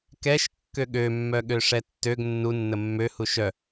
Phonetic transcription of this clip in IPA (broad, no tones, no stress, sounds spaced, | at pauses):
k ɛ ʃ kː ø ɠ ø mː œ ɠ ø ʂ ɛ tː ø ɡ nː u nː ə mː ø h u ʃ œ